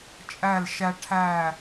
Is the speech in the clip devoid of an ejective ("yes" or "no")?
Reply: no